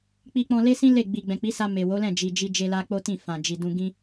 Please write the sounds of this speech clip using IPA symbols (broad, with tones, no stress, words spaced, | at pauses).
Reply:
k͡pi˧k͡pɔ̃˧le˦sĩ˦ le˦˨ ɡ͡bi˨ ɡ͡bɛ̃˨k͡pi˨˦sa˧ me˨ wo˨˦lɛ̃˦˨ d͡ʒi˨d͡ʒi˧ d͡ʒe˧la˧ k͡po˦tĩ˦˨ fã˨d͡ʒi˨dũ˧ ɡĩ˦